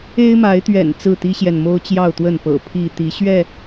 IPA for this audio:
e˦ ɪ̯ m a˨˦ ɪ̯ t̪ ɥ ɛ̰˨˩ n t͡s ɹ̩˥˨ t̪ i˦ ɕ j ɛ˨ n m o˦ ʊ̯ t͡ɕ j ɑ˥˨ ʊ̯ t̪ w ə˥˨ n p ɤ̰˨˩ pʰ i˥˨ t̪ i˨˦ ɕ ɥ ɛ˥˨

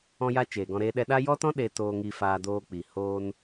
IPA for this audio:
ɔ̃˧ j a˧ t͡ʃ eː˨ ɡ ɔ̃˧ ɾ eː˧ ɗ ɛ˧ ɗ a˦ j ɔ˦ t ɔ̃˦ ɗ e˧ t oː˧ ŋ i˧ f aː˧ d oː˧ k͡p i˨ h oː˧ n

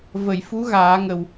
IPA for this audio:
v ə˨˩˨ j f u˧˥ ɣ aː˨˩˦ ŋ ə˨˩ w

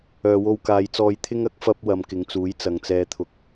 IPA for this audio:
œː˨ w o˧ w k aː˨˧ j t͡s ɔː˧ j t̪ʰ ɪ˥ ŋ ɐ˨˥ k̚ f ɐ˥ p̚ w ɐ˨ m k ɪ˨˧ ŋ t͡s uː˨˥ j t͡s ɐ˨ ŋ t͡s ɛː˧ t̪ʰ ʊ˧ k̚

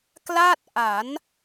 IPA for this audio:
k l a˥˩ t̚ ʔ a˩˦ n

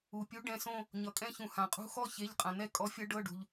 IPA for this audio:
u˩ pʲ u˨˥ ɖ ɛ̃˩˧˩ s õ˥˧ | ɲ ʌ˩ kʼ ɛ̃˥˧ ç ũ˩ h ã˩ qʼ ṳ˥˧ x ɔ˥˧ ç e˩˧˩ ʎ qʼ ã˩ n̪ ɛ˥˧ kʼ ɔ˨˥ fʲ ʌ˨˥ ɖ ɤ˩˧˩ ɖ ṳ˩ ʎ

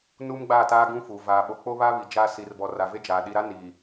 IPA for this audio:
n uː˦ m ɡ͡b a˦˨ t aː˦ ɡ ũ˦ f u˨ v aː˨ ɓ o˨ k͡p o˦ β a˦ β i˨ d͡ʒ aː˦ s i˨ r b ɔ˨ r a˨ v e˦ d͡ʒ aː˨ ɗ i˨ ɾ a˦ n i˨

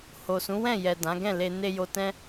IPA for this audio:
h o˨ s ũ˨˦ w ɛ̃˦˨ j ɛ˨ d ã˨˦ ɡ ɛ̃˦˨ l e˨ n e˧ j o˧ t ɛ̃˦

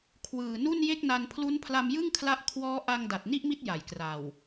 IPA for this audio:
kʰ w ɯː˨˩ n u˥˩ n j e˥˩ k̚ n a˧ n pʰ l u˦˥ n pʰ l a˧ m j ɯ˥˩ ŋ kʰ l a˦˥ ʔ kʰ w ɔː˦˥ ʔ a˧ ŋ d a˨˩ t̚ n i˥˩ ʔ m i˦˥ t̚ j a˨˩ j k r a˨˩ w

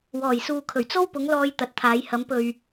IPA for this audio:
w ɔː˨˩ j s uː˨ kʰ ɵ˨˩ ɥ t͡s o˥ w p ʊ˨˧ ŋ l ɔː˧ j t̪ ɐ˨ t̚ t̪ʰ aː˨˧ j h ɐ˨˧ m p ɵ˨ ɥ

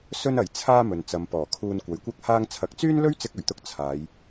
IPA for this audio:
s ɵ˥ n ɐ˨ j t͡sʰ aː˥ m ɵ˨ n t͡s ɐ˨˧ m p ɔː˨˩ kʰ uː˧ n kʷ ɐ˨˥ j kʷ ɐ˥ k̚ h aː˧ ŋ t͡sʰ ɐ˨˥ k̚ t͡s yː˥ n l ɵ˥ ɥ t͡s ɪ˥ k̚ ɵ˨˩ ɥ t̪ ʊ˥ k̚ t͡sʰ aː˨˧ j

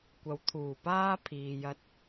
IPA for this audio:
kʷ ɐ˨ w t̪ʰ uː˨˩ p aː˥ pʰ iː˨ j ɐ˧ t̚

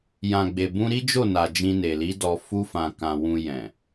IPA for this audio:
j ã˨ ɡ͡b e˨ b ũ˧ ɾ i˦ d͡ʒ o˦˨ n a˨ d͡ʒ ĩ˧ n e˨ l i˨˦ d ɔ˧ f u˦ f ã˧ k ã˧ w ũ˧ j ɛ̃˨

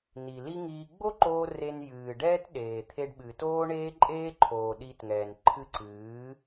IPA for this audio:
n i˨ l i˦ ŋ iː˧ ɡ͡b o˦ ǃ oː˧ r e˧ n j ɨː˨ ɖ ɛː˦ t ɗ eː˨ t̪ʰ e˧ ɖ ɓ ɨː˨ t oː˦ ɳ eː˦ ǃʼ eː˦ ǃʰ oː˨ ɗ i˧ t ŋ ɛː˨ n ǃʰ ɨ˦ ǀ ɨː˨˦

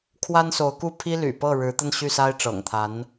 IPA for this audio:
kʰ w a˥ n s o˧˥ ʊ̯ k u˥˩ pʰ i˥ l y̰˨˩ p ɤ˥˩ ɻ ɻ̩˧˥ t̪ ə˥˧ n ɕ y˥˩ s a˥ ɪ̯ ʈ͡ʂ ɤ̰˨˩ ŋ t̪ʰ a˧˥ n

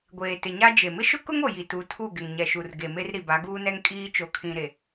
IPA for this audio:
ɡʷ eː˨ t ɪ˨ ɲ a˦ d͡ʒ e˨ m ɪ˦ ʃ ʊ˦ k ʊ˦ ŋ o˨ j i˨ t u˨˦ tʰ u˦˨ ɡ ɪ˨ ŋ ɲ ɛ˨ ʃ u˨ r ɡ e˨ m e˦ r ɾ i˨ b a˨˦ ɡ uː˦ n ɛ˦ ŋ kʼ iː˦ t͡ʃ o˨ kʰ ĩ˨ ɾ e˨

